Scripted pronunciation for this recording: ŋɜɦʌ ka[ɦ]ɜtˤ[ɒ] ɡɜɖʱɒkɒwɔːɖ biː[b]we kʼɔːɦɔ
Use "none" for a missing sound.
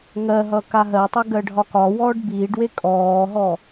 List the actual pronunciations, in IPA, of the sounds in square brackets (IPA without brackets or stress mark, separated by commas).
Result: ɦ, ʌ, ɖ